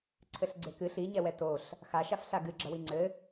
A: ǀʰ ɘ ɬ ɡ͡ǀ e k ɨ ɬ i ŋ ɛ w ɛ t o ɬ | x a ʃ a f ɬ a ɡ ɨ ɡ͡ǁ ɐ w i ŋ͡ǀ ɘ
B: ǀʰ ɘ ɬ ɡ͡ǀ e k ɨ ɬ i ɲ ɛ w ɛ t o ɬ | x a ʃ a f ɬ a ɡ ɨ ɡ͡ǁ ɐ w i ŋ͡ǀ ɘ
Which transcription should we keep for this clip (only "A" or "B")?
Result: B